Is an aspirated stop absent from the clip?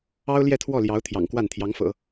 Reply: no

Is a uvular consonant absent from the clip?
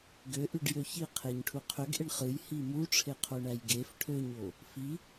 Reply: no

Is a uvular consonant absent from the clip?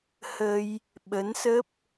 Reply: yes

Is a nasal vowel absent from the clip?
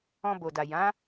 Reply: no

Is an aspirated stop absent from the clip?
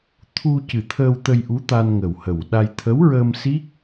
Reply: no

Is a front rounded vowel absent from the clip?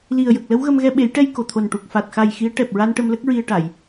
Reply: yes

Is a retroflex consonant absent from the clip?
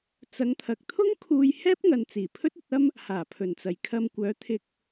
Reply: yes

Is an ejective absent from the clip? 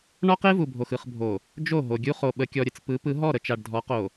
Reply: yes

